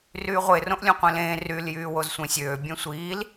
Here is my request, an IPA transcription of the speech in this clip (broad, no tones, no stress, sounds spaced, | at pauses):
r yː ʁʷ e r õ ʔ lʲ õ qʷ ẽ l ẽː r y l j yː w o z sʷ ẽ sʲ øː bʲ ẽ sʷ iː l